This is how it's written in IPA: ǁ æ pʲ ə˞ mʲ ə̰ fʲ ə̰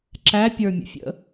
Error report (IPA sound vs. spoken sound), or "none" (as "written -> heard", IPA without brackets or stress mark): none